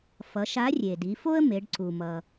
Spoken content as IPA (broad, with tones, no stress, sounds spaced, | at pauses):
f ʌ˩˧ ʃ a˧˥ rʲ e˩ d i˩˧ f o˥ ə̯ m e˩˧ ɖ ǀ u˩ m ʌ˩